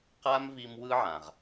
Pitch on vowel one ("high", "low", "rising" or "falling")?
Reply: high